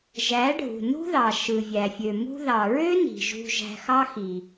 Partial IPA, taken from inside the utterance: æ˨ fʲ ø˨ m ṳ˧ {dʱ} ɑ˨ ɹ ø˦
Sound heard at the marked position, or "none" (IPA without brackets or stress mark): ð